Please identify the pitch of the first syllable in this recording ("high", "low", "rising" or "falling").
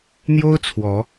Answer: high